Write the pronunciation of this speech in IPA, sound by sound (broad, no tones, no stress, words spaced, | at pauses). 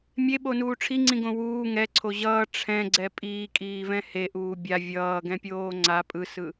mʲeɓonuː ʈ͡ʂʰiŋ͡ǀĩɡõ wuː ŋɛǀʰo ʑʌː ʈ͡ʂʰɛ̃ɡ͡ǀɛ pʼiːkʼiːvɛ̃ heʔuː bʲa vʲʌːɡɛ̃pʲoː ŋ͡ǀa pʼɯsɯ